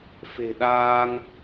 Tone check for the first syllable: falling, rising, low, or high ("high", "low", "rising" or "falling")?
low